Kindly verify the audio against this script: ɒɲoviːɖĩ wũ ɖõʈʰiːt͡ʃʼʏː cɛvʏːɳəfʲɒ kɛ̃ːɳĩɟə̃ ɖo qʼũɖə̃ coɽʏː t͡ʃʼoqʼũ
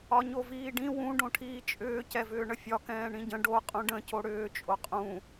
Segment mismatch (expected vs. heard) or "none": none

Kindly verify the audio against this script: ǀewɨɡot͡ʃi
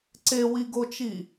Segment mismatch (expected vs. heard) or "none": ɨ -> i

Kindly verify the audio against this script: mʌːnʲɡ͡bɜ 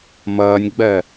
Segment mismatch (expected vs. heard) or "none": none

